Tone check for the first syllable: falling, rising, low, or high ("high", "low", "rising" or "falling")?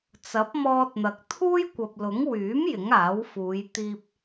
rising